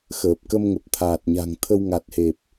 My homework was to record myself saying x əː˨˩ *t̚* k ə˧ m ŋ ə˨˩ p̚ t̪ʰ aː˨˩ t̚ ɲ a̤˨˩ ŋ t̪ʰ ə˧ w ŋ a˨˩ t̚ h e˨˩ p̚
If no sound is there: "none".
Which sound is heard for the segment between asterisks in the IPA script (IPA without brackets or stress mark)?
p̚